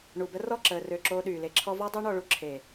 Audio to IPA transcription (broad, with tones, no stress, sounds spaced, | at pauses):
ɳ u˨ b ə˦ r ɔ˦˨ ǁ əː˨ r ø˨ ǁ oː˧ ɗ yː˨ l e˧ ǁʰ ɔ˦ v ɔ˦ dˤ o˦ ɳ ɔ˧ ɭ u˦ ǁʰ e˨